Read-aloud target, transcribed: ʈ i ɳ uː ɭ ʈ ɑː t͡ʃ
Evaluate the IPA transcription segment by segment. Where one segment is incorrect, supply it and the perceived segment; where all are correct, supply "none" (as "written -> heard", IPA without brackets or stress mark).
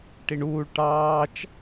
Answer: none